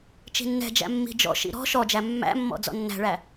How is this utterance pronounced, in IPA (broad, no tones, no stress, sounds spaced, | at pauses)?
t͡ʃ i̤ nː ɛ̤ d͡ʒ æ̰ mː i̤ d͡ʒ ɔ̰ ʃ ḭ ɾ ɔ̤ ʃ ɔ d͡ʒ æ mː æ̰ mː ɔ̰ d͡z ɔ̰ nː æ̤ ɭ æ